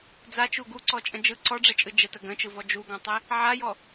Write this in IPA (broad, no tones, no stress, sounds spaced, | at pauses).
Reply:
d͡z a t͡ʃ u ɡ u ǀ ɔ t͡ʃʼ ə̃ d͡ʒ ɯ ǀ ɔ ɖ͡ʐ ɛ t͡ʃʼ ɯ d͡ʒ ə t ə ɡ ə̃ t͡ʃ ɯ v ɔ d͡ʒ u ɡ ɔ̃ tˤ e | ʕ a j ɔ